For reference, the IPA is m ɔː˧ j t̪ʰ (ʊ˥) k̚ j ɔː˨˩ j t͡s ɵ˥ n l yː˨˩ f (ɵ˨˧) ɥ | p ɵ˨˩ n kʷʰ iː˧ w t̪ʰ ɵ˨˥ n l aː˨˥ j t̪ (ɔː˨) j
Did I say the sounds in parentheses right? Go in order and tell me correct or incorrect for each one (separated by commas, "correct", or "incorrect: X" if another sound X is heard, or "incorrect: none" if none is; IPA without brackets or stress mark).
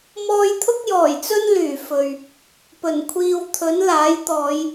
correct, incorrect: ɵ˨, incorrect: ɔː˨˧